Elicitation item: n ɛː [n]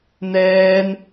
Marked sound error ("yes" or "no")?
no